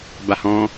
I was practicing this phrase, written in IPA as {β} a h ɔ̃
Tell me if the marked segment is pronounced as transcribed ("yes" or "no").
no